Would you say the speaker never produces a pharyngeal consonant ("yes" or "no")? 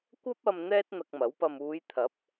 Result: yes